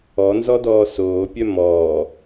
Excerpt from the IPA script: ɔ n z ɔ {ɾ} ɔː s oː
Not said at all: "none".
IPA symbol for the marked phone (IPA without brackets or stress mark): d